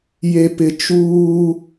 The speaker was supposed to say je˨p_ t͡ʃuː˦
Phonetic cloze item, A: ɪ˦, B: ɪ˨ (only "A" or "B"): B